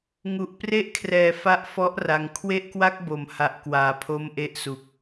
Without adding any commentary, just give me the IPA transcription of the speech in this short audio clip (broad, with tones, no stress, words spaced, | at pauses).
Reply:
ŋu˨˩ʔpre˥˩ʔkʰrɛː˨˩fa˦˥ʔ fɔ˦˥ʔra˩˦ŋ kʰwe˥˩ʔkwa˥˩k̚bo˩˦m ha˨˩ʔkwaː˩˦ pʰo˦˥m ʔe˦˥ʔsu˨˩k̚